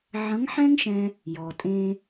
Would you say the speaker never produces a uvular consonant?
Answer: yes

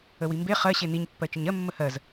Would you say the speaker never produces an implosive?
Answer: yes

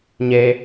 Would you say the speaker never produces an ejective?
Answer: yes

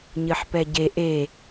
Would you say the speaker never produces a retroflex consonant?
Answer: yes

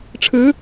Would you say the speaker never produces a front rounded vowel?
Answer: yes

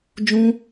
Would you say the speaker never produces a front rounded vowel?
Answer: yes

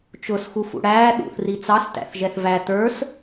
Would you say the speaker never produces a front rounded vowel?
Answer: yes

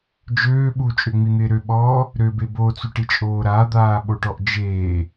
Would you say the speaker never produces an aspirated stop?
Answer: yes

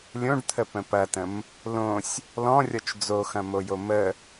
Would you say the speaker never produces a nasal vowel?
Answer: no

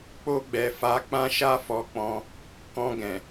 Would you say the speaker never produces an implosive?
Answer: yes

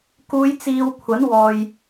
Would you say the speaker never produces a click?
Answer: yes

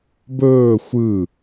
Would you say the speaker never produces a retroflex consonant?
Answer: yes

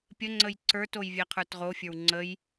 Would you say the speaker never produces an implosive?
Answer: yes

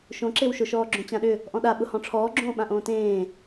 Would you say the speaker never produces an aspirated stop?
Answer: no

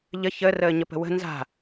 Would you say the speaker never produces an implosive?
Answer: yes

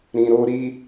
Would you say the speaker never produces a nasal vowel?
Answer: no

